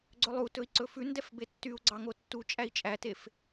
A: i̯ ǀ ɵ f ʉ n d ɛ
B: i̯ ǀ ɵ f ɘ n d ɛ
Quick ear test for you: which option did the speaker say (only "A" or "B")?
A